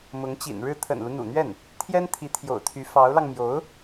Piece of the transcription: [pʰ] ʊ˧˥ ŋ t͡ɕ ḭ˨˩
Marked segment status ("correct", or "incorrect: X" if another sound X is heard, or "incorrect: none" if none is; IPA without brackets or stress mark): incorrect: m